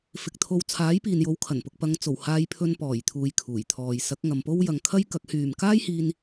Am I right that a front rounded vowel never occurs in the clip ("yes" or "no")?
no